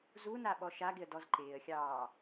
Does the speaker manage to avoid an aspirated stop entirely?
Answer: yes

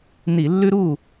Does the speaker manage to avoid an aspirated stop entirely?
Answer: yes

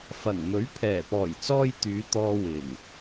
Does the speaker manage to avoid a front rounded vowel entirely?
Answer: no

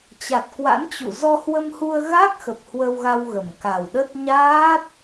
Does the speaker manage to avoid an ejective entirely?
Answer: yes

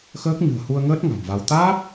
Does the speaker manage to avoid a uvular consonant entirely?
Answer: yes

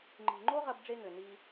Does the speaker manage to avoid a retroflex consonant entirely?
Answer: no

